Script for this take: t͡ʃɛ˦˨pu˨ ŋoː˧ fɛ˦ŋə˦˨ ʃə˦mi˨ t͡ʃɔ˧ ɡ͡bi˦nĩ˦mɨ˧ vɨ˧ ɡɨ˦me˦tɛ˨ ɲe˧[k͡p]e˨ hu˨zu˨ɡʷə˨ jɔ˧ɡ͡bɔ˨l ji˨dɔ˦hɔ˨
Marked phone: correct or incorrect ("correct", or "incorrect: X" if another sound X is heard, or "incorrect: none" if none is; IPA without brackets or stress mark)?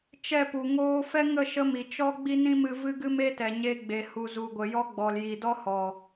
incorrect: ɡ͡b